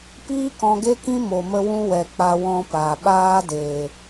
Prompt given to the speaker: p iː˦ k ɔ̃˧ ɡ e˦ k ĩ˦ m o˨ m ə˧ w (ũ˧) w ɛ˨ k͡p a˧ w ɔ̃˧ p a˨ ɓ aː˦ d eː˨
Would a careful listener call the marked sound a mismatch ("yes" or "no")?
no